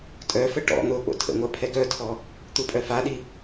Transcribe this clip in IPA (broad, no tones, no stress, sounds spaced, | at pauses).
tʼ œ f ə ʈ ɔ̰ n̪ o k͡p o̰ tʰ ə̰ ŋʷ a pʰ ɛ ɡ œ tʰ ɔ | t̪ u pʼ œ f a ɗ i